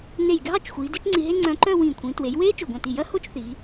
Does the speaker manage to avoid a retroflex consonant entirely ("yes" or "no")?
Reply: yes